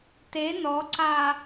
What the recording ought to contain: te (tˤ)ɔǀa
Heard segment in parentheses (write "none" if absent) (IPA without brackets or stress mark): n